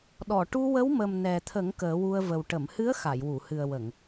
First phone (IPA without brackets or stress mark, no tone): ɗ